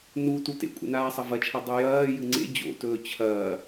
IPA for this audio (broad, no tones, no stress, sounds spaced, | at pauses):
n u t u t ḛ kʷʼ ḛ n aː sˤ ɐ v ɐ t͡ʃʰ a dˤ ʉ j ɐː j ɨ ŋ͡ǀ ḛ d͡ʑ o̰ t ɵː t͡ɕʰ ɐː